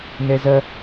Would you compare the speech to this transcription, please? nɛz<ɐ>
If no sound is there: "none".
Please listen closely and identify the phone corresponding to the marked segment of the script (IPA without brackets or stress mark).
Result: ɐ